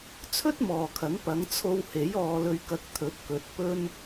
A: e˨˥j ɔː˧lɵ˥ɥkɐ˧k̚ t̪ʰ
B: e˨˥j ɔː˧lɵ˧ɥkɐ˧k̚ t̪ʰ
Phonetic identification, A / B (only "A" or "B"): B